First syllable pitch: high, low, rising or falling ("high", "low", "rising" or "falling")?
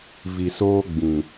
low